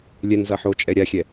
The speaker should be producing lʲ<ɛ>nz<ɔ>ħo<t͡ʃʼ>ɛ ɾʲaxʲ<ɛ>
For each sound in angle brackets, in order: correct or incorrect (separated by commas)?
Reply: correct, incorrect, correct, correct